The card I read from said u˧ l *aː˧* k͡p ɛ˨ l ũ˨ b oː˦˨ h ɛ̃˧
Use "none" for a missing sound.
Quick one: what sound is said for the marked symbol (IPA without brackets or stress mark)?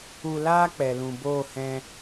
aː˦